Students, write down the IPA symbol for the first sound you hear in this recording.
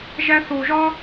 ʒ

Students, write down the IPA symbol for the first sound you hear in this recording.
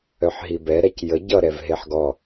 œ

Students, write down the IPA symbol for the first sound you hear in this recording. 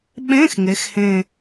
ɓ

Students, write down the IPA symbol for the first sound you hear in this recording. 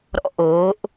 ɾ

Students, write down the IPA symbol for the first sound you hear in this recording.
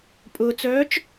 pʼ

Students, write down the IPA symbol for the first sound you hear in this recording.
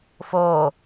f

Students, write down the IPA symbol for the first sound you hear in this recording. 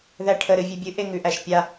ð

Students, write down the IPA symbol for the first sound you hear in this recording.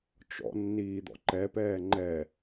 t͡ʃ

